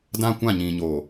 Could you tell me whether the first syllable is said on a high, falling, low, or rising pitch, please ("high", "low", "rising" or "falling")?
high